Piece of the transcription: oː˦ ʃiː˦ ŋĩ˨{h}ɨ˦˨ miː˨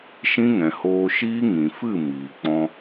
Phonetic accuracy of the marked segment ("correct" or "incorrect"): incorrect